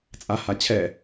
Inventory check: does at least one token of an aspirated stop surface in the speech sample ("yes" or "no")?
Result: yes